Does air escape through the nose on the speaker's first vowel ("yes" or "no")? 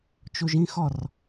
no